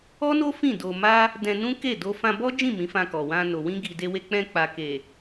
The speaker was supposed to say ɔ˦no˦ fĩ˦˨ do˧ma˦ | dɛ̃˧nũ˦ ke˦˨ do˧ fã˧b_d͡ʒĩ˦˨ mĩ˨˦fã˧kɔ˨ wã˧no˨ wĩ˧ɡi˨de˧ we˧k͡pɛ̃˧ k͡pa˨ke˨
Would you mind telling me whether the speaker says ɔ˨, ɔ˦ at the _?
ɔ˦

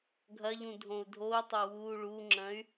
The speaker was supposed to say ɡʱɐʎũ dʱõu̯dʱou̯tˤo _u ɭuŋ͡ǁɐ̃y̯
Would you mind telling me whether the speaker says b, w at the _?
w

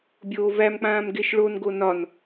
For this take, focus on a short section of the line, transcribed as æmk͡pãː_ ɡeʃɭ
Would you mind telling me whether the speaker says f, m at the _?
m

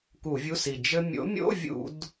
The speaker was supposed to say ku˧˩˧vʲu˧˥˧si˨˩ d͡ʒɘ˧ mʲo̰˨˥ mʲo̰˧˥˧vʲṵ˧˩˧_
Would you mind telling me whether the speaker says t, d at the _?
d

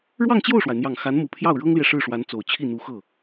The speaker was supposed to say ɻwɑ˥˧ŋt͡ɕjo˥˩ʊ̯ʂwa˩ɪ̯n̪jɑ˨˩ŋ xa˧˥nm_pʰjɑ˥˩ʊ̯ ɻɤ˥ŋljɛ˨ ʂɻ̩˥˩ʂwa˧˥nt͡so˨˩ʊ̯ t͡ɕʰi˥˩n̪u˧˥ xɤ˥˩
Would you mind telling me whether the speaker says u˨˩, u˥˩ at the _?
u˨˩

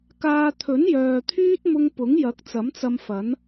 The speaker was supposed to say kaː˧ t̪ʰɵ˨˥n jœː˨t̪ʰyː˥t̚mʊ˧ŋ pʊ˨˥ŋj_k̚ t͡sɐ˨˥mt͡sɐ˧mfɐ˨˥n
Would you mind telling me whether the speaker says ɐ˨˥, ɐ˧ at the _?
ɐ˨˥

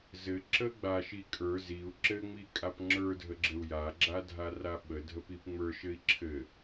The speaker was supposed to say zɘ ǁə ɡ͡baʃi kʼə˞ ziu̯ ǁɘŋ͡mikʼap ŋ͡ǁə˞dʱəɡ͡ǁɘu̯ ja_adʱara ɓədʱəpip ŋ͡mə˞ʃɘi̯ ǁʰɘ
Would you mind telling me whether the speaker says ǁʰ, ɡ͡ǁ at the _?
ɡ͡ǁ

